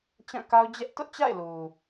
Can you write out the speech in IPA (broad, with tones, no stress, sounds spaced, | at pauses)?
t͡ɕ ã˦˨ k a˦ ʊ̯ d͡ʑ ɛ˦ ʔ t ʊ˦ ʔ t͡ɕ a̰˦˨ ɪ̯ l u˨